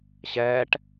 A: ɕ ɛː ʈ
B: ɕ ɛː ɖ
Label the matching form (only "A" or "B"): A